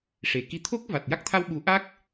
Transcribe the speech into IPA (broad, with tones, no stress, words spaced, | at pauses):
ʂe˨˩˨ki˧˥ t̪ʰo˦˥k̚ va˨˩t̚ja˦˥k̚t̪ʰa˧w ɓu˨˩˦ʔa˦˥k̚